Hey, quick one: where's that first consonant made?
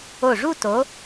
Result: retroflex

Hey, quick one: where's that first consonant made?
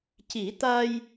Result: palate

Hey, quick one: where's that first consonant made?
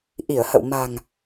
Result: throat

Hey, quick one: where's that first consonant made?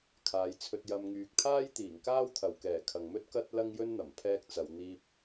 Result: velum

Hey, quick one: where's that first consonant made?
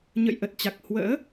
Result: palate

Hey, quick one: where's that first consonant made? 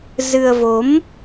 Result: tongue tip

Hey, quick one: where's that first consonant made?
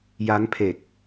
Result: palate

